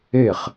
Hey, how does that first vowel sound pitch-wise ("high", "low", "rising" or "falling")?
falling